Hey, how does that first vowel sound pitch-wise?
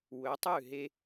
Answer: rising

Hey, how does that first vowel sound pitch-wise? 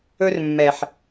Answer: high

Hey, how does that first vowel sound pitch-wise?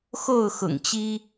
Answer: falling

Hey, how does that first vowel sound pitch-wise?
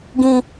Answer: low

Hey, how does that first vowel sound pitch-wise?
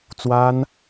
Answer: high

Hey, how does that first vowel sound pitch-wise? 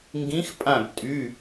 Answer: rising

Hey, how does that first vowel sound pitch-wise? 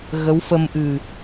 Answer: rising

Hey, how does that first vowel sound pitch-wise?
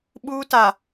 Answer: high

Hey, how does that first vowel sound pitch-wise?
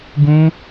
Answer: high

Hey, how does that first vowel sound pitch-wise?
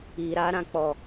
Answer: low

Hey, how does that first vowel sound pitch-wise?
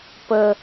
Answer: high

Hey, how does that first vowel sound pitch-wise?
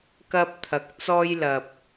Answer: high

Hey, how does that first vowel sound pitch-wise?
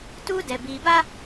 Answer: high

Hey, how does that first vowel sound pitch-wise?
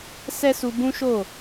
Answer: high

